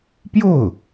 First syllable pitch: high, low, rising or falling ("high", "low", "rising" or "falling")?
falling